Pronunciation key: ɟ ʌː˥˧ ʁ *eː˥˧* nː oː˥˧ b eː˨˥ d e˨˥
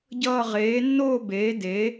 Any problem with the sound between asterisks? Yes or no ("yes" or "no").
yes